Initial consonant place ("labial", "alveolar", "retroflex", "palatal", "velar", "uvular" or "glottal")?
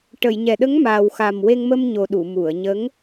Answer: retroflex